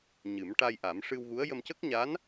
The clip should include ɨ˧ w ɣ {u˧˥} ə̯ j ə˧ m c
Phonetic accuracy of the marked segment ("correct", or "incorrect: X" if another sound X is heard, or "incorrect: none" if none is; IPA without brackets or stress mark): correct